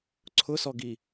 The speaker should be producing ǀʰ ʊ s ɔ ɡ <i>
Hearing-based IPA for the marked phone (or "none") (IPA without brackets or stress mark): i